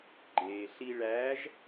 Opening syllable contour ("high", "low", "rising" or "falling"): low